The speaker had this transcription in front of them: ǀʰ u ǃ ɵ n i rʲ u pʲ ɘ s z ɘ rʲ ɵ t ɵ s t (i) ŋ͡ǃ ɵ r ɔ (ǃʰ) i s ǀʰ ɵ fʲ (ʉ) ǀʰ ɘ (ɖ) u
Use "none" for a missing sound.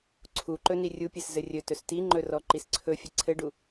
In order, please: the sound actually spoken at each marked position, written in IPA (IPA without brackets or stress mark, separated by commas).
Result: i, ǃ, ɘ, ɖ